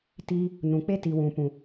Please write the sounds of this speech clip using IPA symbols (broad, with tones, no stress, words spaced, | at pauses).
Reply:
tiː˧ | nũ˨k͡pe˦ti˨ wũ˨pũ˨